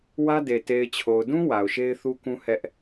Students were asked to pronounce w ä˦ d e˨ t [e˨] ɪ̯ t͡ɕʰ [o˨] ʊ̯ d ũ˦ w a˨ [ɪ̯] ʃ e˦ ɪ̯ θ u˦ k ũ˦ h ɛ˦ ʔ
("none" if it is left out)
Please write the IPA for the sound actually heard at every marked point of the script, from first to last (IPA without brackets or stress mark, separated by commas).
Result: e˨, o˨, ʊ̯